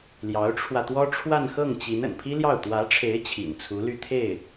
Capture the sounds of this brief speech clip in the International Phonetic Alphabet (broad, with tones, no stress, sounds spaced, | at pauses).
l j ɑ˧˥ ʊ̯ ʈ͡ʂʰ w ä˧ t̪ w ɔ˥ ʈ͡ʂʰ w a˥˧ n x ɤ˥˩ ŋ t͡ɕ i˧˥ n ə̰˨˩ n pʰ i˥ l j ɑ˥˩ ʊ̯ t̪ w ä˧˥ ʈ͡ʂʰ e˧˥ ɪ̯ t͡ɕʰ ḭ˨˩ n t͡sʰ u˧˥ l y˥˧ t̪ʰ e˥˩ ɪ̯